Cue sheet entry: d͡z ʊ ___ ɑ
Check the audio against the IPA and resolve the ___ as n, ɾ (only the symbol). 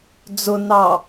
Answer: n